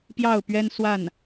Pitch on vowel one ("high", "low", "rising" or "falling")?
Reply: falling